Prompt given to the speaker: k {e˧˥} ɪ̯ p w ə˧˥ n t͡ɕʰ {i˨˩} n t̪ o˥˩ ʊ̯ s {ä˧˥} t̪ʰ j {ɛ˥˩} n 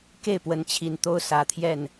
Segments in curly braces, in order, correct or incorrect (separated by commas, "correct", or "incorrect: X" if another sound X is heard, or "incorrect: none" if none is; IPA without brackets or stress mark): incorrect: e˥˩, correct, incorrect: ä˨˩, correct